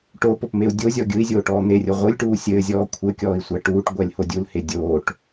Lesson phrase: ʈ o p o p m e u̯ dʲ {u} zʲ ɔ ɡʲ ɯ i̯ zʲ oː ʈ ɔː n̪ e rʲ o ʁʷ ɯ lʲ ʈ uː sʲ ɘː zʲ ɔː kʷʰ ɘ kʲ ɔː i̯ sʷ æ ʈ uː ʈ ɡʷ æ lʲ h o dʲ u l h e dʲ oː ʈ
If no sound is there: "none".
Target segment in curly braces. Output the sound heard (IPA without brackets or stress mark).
o